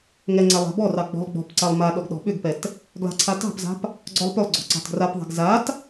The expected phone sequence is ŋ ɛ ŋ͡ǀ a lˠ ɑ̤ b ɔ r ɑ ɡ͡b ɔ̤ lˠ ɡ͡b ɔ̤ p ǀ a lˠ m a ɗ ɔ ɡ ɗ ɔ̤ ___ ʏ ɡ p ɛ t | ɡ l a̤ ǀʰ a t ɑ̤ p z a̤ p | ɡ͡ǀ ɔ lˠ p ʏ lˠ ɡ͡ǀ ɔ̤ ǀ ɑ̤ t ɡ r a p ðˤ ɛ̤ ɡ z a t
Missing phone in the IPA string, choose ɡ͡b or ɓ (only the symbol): ɓ